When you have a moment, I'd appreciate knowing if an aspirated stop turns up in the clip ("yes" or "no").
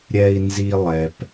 no